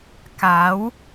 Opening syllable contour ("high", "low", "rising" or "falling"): rising